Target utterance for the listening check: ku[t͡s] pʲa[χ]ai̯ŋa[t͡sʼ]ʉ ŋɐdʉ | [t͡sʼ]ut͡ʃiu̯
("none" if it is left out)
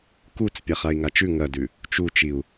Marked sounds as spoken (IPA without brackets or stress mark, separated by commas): t͡s, χ, t͡ʃ, t͡ʃ